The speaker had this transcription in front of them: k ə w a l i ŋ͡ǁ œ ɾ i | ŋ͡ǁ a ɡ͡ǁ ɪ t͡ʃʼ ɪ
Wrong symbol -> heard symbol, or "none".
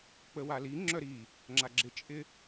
k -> k͡p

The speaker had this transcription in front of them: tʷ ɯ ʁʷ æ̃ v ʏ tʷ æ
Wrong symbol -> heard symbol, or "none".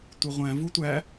ʏ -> u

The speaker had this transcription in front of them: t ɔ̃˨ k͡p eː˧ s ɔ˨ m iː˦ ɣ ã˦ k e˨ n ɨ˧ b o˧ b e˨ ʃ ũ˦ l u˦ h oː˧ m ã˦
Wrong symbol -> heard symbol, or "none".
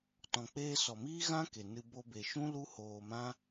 none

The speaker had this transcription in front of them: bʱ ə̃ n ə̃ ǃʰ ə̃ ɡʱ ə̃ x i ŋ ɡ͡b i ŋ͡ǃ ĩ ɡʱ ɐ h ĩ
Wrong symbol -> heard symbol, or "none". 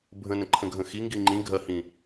ɡ͡b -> ɡ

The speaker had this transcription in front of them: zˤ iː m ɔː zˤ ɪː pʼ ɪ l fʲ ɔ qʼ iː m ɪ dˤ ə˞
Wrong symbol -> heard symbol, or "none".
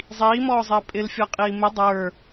none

